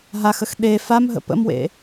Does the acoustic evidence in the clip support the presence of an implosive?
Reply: yes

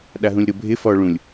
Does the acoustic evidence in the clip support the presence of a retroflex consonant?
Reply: yes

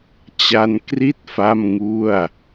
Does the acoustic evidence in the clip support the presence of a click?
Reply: no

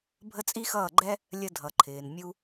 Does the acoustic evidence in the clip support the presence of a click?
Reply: yes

